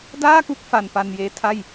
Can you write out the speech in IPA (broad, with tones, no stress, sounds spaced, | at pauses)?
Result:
d aː˥˩ k u˥˩ k̚ f a˧ n p a˧ n j eː˦˥ tʰ a˥˩ j